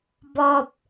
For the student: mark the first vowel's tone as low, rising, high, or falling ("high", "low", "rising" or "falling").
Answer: low